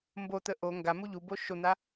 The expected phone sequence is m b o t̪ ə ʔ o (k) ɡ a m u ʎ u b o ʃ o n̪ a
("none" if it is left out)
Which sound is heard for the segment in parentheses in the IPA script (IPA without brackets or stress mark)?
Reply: ŋ